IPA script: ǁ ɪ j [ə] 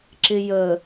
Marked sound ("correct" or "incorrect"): correct